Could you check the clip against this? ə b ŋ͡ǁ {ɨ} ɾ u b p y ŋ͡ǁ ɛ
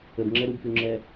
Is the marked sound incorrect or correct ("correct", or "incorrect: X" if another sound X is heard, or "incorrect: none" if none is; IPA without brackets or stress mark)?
incorrect: ɛ